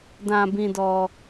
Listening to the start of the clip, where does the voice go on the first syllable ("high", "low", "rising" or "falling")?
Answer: low